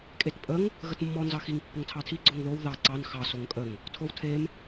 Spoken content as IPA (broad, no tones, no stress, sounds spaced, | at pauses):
kʼ e t pʼ ə ŋ | ɣ ə t mː ɔ n z ɑ x i ŋ pː ə ŋ tʰ ɑ tʰ i ɡ͡ǀ o ŋ ð o w ð ɑ ǀ ɑ n x ɑ s o ŋ kʼ ə ŋ | tʰ o w tʰ e m